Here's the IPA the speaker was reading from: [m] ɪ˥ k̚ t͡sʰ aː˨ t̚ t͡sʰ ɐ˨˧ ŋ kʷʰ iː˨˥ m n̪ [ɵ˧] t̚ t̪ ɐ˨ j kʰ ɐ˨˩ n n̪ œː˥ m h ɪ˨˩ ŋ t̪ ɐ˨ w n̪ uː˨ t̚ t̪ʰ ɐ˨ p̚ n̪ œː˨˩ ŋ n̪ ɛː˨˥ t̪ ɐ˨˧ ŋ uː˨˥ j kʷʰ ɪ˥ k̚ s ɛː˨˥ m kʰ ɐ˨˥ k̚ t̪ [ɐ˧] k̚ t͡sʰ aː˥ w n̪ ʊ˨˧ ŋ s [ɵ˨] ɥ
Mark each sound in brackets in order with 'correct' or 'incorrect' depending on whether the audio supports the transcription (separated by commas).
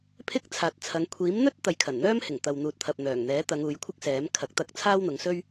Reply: incorrect, incorrect, correct, incorrect